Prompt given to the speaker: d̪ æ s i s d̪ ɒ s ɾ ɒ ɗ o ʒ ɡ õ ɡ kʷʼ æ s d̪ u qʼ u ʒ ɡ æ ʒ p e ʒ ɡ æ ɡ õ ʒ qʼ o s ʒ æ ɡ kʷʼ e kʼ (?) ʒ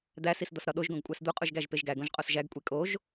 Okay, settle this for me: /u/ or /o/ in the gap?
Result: o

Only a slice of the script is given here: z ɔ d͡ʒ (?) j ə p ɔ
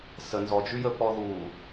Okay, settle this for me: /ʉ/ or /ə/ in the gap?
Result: ʉ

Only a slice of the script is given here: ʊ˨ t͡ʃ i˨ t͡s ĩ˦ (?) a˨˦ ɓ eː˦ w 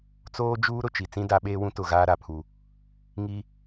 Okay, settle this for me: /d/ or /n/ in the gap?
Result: d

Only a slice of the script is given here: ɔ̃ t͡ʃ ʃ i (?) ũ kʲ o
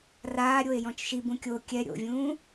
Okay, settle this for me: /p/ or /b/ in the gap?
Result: b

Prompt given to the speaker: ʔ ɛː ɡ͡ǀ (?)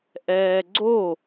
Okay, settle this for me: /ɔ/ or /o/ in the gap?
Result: o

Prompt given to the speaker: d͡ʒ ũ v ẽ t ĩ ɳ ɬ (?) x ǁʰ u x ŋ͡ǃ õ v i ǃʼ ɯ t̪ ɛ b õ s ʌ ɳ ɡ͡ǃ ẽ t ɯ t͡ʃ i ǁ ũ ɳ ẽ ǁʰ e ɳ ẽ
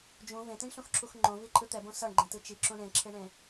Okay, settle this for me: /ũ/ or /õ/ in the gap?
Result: ũ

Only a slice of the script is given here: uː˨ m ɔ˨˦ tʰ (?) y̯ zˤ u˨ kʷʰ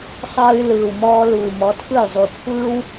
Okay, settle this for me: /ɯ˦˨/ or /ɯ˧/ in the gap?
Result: ɯ˦˨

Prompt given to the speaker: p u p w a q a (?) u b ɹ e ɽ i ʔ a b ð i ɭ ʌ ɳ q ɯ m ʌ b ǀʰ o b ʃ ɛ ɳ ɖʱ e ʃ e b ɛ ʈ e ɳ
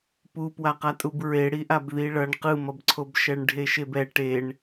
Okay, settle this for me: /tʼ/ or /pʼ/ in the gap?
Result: tʼ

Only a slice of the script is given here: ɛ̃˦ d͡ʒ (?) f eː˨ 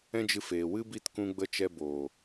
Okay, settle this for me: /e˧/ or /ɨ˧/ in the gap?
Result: ɨ˧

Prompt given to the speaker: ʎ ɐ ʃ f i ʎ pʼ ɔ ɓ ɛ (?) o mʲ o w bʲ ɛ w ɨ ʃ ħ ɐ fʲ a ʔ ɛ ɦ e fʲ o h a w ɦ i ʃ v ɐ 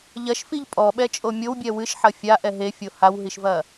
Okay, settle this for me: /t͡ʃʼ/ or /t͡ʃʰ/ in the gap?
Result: t͡ʃʼ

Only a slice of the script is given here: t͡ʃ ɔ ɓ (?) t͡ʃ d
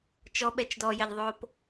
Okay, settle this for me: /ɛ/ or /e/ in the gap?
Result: ɛ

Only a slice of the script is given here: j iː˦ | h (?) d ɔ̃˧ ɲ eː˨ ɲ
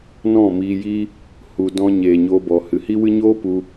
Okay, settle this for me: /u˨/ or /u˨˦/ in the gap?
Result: u˨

